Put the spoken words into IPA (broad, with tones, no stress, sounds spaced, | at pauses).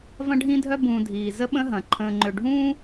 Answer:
v ɐ̃˦ ɖʱ ĩ˦ dʱ œ˦ b ũː˨ dʱ iː˩ z ə˥ ɓ ə̃˥ ɦ ɐ̃˩ ǃʰ ə̃ː˨ ŋ͡ǃ ø˨ ɖʱ ũː˥